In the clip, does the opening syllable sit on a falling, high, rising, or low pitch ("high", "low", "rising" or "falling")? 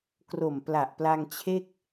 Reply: low